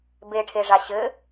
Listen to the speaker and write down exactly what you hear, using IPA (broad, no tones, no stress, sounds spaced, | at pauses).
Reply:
b e ʈʰ e ʐ a ɕ ɘ